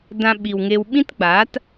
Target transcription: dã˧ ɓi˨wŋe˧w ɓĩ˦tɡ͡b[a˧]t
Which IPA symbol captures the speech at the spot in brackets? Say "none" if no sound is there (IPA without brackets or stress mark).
a˨˦